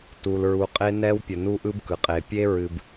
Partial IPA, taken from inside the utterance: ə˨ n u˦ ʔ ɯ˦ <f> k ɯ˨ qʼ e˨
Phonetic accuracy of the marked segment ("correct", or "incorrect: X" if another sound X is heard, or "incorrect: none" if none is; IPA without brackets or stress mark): incorrect: b